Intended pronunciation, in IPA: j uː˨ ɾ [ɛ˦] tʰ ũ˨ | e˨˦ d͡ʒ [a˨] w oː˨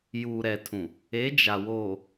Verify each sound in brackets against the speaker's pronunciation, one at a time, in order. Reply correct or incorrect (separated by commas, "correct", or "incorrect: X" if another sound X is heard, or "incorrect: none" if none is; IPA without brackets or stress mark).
incorrect: ɛ˨, correct